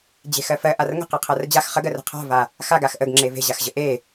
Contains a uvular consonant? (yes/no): yes